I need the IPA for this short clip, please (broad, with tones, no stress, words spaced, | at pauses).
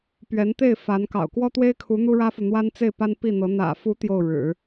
pɥɛ˧˥nt̪e˥˩ɪ̯ fa˧˥n kɑ̰˨˩ʊ̯kwɔ˥t̪we˥ɪ̯kʰu˧˥ n̪u˥ɻä˥fu˨ n̪wa˥nt͡se˥˩ɪ̯pa˥n pi˥˩n̪ɤ˧˥ n̪ä̰˨˩fu˧˥ t̪jo˥˩ʊ̯ɻɻ̩˨˩˦